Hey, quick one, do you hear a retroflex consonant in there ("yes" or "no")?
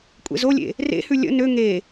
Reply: no